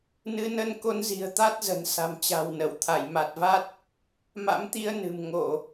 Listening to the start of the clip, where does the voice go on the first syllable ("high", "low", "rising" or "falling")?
rising